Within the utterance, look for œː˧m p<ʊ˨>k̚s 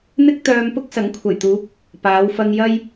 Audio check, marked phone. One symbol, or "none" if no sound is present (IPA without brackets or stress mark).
ʊ˥